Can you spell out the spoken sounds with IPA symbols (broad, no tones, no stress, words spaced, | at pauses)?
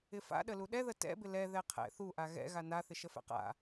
ɪfa̰ɗəlu ɗɛðə tɛ̰bɪ lɛ ðɛqʰɛ̰ θuʔa ɣɛ̰ ɣana θɪʃəfɛ̰qa̰